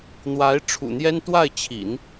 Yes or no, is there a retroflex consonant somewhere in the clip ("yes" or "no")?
yes